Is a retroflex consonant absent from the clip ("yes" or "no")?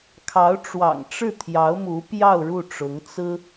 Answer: no